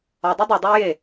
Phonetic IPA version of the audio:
ɒ dˤ e dˤ ɨ dˤ ɨ w j e

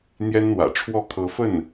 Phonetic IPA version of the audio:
n̪ j ɛ˥ n n̪ w ä̰˨˩ ʈ͡ʂʰ w ɔ˥˩ kʰ ɤ˧˥ f ə˥˩ n

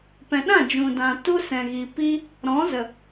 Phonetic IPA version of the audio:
p ɛ̃˨ ɗ ã˦˨ d͡ʒ ũ˨ d ã˨ t u˦ s ɛ̃˨ ɣ i˨ p i˦ | ɾ ɔ̃˨˦ z ə˨

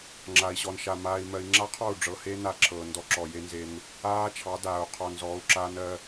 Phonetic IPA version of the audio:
ŋ͡ǁ a˨ i̯ ɕ ɔ˨ n ʃ a˨ m aː˨ i̯ m ɜ˨ i̯ ŋ͡ǁ a˦ qʰ ɔ˦˨ u̯ ɖ͡ʐ ɤ˨ h e˦ n a˦ ǁʰ ɤː˨ n d ɔ˦ ǁ ɔ˨ j e˦ n z e˦ n | aː˦ t͡ʃʰ ɑ˨˦ d aː˨ u̯ qʰ ɔ˨ n z ɔː˨˦ u̯ ǁ aː˦ n ɜ˦

